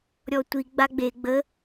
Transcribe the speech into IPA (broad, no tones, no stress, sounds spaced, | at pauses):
ɾʲ ɔ tʷ i ɡ͡b a ɡ͡b e ɡ͡b ə